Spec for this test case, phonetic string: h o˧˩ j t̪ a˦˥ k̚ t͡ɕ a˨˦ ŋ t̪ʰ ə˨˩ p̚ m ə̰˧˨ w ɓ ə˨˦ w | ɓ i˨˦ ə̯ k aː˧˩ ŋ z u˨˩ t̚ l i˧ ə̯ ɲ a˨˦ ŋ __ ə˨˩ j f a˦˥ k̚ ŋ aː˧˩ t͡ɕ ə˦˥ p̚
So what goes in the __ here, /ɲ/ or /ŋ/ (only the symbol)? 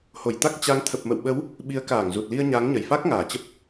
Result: ɲ